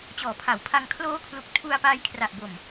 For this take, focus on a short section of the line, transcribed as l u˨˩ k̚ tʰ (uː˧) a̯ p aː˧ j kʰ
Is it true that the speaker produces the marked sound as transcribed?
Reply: no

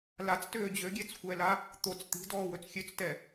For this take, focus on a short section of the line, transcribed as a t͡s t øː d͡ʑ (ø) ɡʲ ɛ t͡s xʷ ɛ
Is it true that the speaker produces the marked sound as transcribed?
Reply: yes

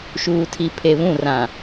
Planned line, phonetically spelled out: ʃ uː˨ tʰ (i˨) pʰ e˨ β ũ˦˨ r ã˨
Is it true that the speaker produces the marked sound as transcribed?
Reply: yes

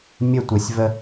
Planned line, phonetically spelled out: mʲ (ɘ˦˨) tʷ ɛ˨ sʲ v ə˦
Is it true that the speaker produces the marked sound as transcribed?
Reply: yes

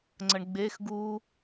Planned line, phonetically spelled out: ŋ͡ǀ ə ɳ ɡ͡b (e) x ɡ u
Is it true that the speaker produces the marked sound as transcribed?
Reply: yes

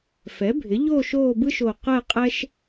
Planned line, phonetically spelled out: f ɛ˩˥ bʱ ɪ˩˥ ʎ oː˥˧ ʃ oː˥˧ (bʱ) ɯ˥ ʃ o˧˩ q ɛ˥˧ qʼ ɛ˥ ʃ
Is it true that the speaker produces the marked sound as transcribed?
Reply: no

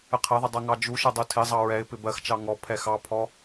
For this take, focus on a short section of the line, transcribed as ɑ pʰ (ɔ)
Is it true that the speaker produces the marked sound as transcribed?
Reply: yes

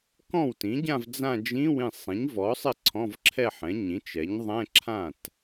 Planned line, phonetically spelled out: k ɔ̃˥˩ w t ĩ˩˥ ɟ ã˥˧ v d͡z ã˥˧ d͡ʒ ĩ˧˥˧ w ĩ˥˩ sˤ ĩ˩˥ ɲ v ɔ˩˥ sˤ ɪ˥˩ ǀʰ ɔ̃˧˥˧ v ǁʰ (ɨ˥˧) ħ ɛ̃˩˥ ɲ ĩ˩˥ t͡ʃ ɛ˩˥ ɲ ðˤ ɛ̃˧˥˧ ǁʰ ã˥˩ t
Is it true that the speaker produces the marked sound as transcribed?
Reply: no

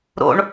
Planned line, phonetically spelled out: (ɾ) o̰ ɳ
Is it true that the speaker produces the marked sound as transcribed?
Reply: yes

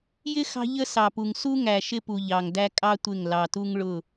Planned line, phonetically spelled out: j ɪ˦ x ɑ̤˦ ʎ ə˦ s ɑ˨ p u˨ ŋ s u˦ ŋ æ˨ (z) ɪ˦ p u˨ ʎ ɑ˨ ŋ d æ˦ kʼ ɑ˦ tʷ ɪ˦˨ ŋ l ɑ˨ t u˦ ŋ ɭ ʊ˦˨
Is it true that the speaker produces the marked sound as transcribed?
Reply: no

